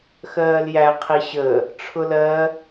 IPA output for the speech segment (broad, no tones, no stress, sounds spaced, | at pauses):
x ɜː l j æ qʰ i ɕ ə | ʈ͡ʂʰ ʊ l ɜ